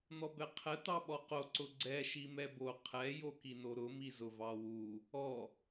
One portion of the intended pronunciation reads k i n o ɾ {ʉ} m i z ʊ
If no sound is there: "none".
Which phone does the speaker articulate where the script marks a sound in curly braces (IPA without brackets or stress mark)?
ʊ